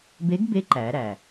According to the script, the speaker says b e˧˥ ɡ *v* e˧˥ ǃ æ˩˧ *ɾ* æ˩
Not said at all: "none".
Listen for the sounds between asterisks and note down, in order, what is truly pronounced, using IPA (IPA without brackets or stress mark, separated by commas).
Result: b, ɾ